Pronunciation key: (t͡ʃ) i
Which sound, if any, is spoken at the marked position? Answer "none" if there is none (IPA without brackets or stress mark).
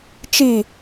t͡ʃ